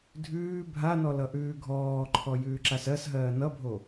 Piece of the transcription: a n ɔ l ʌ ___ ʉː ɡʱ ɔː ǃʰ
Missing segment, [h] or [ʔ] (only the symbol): ʔ